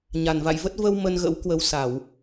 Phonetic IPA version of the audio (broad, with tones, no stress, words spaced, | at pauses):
ɲa˧˩nva̰˧˨j və˦˥t̚ və˧w mə˧nɣə̰˧˥w kwə˨˦wsa˧˩˨w